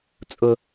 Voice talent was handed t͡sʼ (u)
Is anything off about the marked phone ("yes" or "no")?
yes